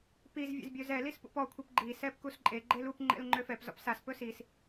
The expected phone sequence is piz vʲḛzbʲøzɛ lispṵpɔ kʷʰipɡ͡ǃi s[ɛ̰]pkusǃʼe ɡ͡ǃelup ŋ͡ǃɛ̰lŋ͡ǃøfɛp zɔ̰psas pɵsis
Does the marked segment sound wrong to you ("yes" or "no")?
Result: yes